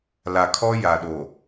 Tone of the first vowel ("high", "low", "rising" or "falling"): low